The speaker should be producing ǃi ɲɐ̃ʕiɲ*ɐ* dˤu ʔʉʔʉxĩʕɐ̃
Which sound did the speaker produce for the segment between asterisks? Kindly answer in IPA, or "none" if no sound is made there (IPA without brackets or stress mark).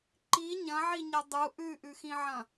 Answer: ɐ